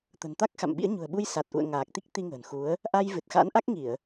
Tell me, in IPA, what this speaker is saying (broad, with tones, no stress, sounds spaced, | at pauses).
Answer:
t̪ ə̤˨˩ n t̪ a˦˥ k̚ x a̰˧˨ m ɓ ḭ˧˥ ə̯ ɲ ṳ˨˩ ə̯ ɓ u˧ j s a˨˩ t̚ ʔ ṵ˧˨ ə̯ ŋ aː˨˩ k̚ t̪ i˦˥ k̚ t̪ i˧ ŋ ə̤ː˨˩ n x u˨˦ ə̯ | ʔ a˧ j v ɨ˨˩ t̚ x a̰˧˥ n ʔ a˦˥ k̚ ŋ i˧˩˨ ə̯